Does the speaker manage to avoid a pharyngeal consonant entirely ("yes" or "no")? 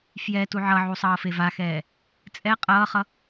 no